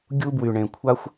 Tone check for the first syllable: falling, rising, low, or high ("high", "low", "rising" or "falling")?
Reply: high